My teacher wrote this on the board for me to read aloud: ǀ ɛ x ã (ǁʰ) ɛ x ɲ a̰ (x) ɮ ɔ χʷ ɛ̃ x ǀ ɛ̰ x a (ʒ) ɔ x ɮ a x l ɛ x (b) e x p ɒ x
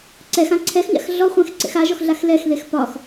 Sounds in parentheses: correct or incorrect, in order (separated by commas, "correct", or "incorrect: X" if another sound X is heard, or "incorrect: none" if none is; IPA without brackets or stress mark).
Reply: incorrect: ǀʰ, correct, correct, incorrect: ð